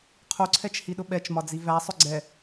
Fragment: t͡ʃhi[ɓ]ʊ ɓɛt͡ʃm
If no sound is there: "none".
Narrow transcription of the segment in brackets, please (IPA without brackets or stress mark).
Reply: ɗ